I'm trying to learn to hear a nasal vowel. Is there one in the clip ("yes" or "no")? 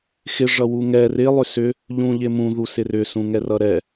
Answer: yes